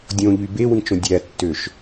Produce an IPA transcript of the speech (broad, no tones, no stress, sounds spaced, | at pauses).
dʲ õ ʎ y b e w ĩ t͡ʃ õ dʲ æ tː ø ʃ